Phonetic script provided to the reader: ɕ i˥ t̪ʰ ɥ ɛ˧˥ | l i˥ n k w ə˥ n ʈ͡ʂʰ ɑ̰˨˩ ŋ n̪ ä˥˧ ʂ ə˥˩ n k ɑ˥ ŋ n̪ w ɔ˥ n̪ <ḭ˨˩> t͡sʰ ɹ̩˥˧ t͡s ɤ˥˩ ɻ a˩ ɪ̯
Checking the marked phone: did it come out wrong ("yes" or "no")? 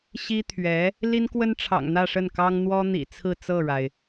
no